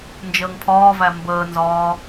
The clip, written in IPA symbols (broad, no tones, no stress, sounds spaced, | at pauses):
n d͡ʒ əː ŋ pʰ ɒː v æ m b əː n z ɒː